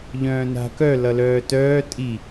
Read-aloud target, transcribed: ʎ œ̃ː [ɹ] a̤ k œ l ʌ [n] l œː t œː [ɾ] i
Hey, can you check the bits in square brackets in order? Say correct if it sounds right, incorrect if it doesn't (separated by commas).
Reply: incorrect, incorrect, incorrect